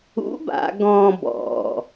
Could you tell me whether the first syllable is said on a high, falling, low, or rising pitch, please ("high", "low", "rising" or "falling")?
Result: rising